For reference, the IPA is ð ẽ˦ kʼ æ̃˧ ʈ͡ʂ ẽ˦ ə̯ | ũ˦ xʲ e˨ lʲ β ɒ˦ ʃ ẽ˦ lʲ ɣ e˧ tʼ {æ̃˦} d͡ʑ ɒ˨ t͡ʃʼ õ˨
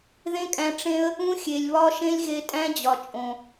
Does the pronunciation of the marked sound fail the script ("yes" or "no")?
no